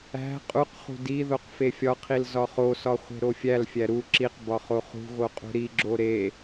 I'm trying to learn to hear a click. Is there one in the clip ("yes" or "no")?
yes